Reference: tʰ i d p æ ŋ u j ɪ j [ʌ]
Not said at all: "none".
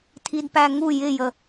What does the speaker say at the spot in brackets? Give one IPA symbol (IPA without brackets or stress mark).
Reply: ə